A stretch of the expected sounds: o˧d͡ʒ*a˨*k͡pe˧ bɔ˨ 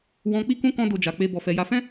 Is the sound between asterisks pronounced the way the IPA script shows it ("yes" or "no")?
yes